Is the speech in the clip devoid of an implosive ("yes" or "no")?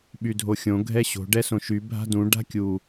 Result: no